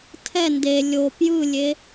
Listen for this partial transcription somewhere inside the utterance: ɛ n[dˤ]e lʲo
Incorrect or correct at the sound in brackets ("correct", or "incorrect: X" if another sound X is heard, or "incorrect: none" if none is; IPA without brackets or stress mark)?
incorrect: d